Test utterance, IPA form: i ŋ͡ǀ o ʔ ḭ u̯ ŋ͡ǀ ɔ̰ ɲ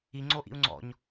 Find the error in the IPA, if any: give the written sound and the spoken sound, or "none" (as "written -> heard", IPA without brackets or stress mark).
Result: none